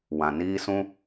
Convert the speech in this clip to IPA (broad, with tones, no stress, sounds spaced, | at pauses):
w ã˨ n iː˦ s ũ˦